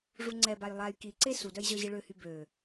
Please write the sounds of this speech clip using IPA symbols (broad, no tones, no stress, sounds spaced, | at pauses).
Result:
ʐ u ŋ͡ǀ ɛ b a j lˠ a j k i ǀ e s u d œ j ʑ œ ʑ i ɭ ø h y b ø